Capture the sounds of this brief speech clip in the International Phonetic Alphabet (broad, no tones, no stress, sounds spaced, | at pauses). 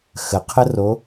x ə qʰ ə r o